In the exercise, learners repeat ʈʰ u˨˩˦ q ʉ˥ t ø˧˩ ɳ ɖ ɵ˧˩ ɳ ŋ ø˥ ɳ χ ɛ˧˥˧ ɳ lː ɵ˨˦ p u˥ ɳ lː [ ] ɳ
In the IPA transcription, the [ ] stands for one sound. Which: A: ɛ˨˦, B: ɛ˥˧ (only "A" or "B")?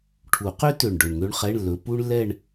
B